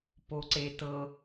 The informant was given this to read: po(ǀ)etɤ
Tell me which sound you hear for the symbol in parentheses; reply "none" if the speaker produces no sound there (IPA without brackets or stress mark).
ǀ